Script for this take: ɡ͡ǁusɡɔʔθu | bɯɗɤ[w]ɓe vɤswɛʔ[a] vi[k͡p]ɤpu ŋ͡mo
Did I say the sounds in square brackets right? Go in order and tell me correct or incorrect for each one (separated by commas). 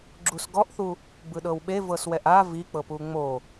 correct, correct, correct